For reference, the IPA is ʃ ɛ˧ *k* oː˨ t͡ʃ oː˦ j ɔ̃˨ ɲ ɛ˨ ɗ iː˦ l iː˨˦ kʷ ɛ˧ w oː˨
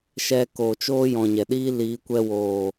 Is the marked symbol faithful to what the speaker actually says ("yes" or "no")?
yes